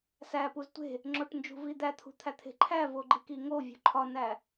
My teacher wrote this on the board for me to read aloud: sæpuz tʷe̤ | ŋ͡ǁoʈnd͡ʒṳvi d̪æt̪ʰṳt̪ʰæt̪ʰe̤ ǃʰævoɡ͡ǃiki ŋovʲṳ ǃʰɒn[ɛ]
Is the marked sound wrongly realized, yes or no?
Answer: yes